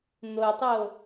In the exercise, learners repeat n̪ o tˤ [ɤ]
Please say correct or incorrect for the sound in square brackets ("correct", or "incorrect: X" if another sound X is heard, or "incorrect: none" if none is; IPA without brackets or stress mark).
incorrect: o